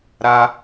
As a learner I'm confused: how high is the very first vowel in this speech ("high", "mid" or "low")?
low